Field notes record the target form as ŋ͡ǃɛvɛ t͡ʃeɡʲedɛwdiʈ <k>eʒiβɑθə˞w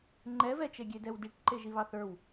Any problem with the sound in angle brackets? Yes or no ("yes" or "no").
yes